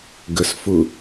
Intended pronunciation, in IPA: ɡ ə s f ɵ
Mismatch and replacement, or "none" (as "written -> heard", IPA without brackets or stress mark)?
ɵ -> ʊ